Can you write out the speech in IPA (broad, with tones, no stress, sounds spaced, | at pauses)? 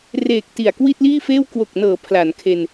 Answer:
r eː˨˩ k̚ t i˨˩ a̯ k w i˥˩ t̚ l iː˥˩ f eː˥˩ w k w o˨˩ k̚ n ɤː˩˦ pʰ l a˩˦ n kʰ e˧ n